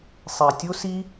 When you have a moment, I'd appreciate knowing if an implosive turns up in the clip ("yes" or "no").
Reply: no